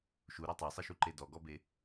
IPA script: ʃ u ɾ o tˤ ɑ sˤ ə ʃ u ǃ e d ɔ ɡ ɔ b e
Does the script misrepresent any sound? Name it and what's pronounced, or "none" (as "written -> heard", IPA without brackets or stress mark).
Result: o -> ɔ